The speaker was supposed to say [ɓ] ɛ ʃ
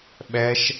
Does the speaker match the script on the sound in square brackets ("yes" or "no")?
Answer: yes